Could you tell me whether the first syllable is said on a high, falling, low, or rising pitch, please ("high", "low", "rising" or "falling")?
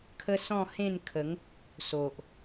high